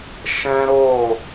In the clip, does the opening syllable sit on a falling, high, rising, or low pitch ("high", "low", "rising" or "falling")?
high